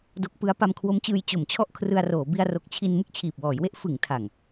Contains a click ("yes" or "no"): no